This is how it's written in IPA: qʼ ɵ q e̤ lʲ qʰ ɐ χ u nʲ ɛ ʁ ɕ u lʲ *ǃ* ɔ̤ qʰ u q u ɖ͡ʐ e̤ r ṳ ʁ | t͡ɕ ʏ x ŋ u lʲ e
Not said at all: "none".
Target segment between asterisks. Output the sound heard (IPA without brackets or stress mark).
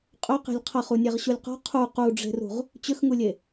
q